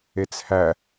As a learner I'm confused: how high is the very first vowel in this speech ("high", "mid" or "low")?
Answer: mid